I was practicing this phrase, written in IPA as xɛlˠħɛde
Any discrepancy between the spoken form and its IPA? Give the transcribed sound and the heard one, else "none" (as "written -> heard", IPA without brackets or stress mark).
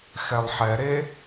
d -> ɾ